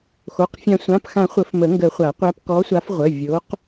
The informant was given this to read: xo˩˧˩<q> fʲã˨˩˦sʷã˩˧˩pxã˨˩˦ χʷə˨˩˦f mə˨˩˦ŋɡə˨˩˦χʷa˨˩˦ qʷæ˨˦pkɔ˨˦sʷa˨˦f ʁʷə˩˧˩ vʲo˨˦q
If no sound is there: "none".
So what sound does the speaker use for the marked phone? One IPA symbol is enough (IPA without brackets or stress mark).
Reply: q